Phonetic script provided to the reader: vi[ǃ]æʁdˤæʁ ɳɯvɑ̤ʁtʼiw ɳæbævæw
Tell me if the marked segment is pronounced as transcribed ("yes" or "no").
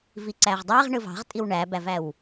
no